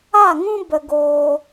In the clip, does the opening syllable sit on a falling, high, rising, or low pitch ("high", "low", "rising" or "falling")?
falling